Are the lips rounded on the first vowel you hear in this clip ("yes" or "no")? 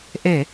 no